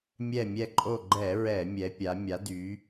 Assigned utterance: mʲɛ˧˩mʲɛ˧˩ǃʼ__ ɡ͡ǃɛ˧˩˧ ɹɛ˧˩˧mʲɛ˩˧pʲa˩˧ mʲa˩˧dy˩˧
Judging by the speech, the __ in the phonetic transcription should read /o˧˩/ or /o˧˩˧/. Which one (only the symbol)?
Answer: o˧˩